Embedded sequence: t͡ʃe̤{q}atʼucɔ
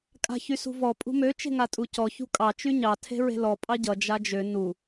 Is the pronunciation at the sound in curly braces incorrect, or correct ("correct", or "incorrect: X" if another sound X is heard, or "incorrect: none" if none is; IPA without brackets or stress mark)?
incorrect: ŋ